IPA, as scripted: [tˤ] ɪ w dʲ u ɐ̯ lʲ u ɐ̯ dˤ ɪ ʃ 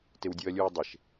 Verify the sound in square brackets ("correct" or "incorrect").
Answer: incorrect